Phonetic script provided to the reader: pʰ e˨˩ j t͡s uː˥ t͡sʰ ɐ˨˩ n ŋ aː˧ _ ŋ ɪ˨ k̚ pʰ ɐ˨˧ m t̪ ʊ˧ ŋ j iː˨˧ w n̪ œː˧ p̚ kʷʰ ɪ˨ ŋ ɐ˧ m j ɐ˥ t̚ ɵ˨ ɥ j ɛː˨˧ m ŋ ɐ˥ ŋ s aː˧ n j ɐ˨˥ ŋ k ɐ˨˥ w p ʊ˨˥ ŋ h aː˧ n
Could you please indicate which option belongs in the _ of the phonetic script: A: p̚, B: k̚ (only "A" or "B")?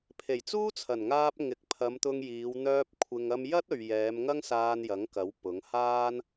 A